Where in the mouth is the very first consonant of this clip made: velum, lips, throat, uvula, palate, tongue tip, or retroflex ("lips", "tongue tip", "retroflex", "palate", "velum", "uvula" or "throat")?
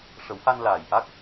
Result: retroflex